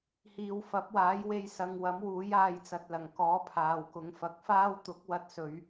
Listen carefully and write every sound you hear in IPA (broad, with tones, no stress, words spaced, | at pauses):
hiː˨wfɐ˨˥p̚waː˨˥j we˧jsɐ˨˧ŋwɐ˨˥m wuː˨˥jaː˧jt͡sɐ˨t̚lɐ˨˩ŋ kɔː˨˥pʰaː˨wkʊ˨˧ŋ fɐ˨˥k̚faː˥w t̪ʊ˨˥k̚ wɐ˧t̚sɵ˨˧ɥ